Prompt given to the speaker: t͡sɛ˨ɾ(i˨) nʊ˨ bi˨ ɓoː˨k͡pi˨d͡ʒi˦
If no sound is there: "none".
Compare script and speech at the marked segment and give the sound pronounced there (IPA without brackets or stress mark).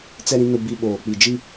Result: ĩ˨